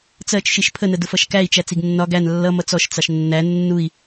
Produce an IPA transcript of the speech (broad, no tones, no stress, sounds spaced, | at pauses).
t͡s ɜ t͡ʃ ʃ i ʃ pʰ ə n ə d ʊ f ʌ ʃ k æ i̯ t͡ʃ æ t͡s i ɡ nː ɒ ɡ æ n lː ʌ m ʌ t͡s ɔ ʃ t͡s ɑ ʃ nː æ nː u i̯